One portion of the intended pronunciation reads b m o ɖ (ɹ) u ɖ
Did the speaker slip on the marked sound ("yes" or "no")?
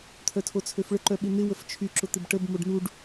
yes